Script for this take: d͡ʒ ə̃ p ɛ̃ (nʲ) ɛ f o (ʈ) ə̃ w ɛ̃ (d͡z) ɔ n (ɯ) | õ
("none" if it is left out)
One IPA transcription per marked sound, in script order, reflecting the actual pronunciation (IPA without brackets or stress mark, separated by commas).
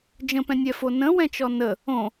nʲ, n, t͡ʃ, ə